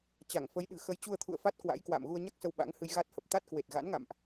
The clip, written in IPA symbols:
t͡ɕ a˧˩ ŋ f ə˨˦ j ɗ ɨ̤˨˩ x ə˨˦ j t͡ɕ u˧ ə̯ t̪ʰ ṵ˧˨ ə̯ f a˦˥ t̚ k w a̰˧˥ j k w a̰ː˧˨ m ɣ u˧ ə̯ ɲ a˦˥ k̚ s ə˧ w ɓ a̰˧˥ ŋ h ɨ˧ j ɣ a˦˥ t̚ h ə˨˩ p̚ t̪ a˦˥ t̚ k w e˨˩ t̚ ɣ a̰˧˥ n ŋ a̰˧˨ m ʔ

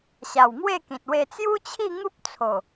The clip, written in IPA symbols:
ɕ a˨˩ w ŋ w e˥˧ k ĩ˨ t̚ w e˧ t͡s j u˦ t͡ɕʰ i˥˧ ŋ u˦ p̚ t͡sʰ o˨˩

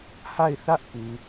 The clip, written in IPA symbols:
h a˦˨ ɪ̯ θ ä˦ ʔ p u˨

